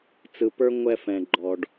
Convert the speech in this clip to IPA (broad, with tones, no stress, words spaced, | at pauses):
t͡sɯ˩pə˞˧ ŋʷɛ˧fɛ̃˩ɡ͡ǃɔ˩ɖ